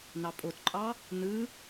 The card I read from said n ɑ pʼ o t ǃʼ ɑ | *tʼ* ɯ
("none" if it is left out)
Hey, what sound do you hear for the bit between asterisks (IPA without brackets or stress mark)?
n